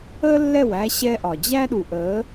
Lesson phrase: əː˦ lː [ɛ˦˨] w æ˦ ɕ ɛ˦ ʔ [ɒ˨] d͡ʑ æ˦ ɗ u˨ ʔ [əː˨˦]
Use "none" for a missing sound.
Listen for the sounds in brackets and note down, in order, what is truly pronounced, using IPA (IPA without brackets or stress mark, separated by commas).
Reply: ɛ˦˨, ɒ˨, əː˨˦